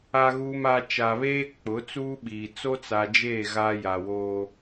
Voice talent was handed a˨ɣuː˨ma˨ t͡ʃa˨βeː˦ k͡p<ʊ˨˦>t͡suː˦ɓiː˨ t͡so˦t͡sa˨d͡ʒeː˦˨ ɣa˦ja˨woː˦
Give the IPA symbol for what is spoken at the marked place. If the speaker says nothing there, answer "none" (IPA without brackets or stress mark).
ʊ˨˦